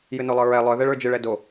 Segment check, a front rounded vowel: present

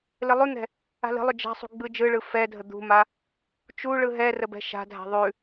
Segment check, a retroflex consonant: present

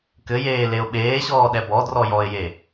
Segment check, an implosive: present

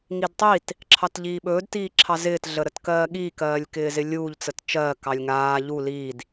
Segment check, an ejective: absent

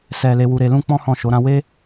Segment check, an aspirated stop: absent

